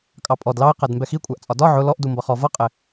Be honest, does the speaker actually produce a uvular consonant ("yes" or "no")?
yes